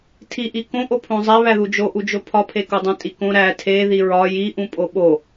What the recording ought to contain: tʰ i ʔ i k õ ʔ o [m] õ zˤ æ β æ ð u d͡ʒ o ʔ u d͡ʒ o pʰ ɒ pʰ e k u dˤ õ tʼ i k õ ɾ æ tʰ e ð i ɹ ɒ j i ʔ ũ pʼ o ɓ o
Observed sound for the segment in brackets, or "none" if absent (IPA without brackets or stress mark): pʰ